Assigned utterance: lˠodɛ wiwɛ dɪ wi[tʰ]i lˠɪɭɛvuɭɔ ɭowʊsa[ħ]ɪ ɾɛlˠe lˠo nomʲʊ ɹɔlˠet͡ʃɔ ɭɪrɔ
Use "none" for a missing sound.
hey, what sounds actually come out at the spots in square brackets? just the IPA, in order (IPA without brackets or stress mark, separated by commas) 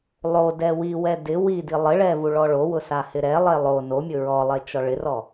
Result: d, h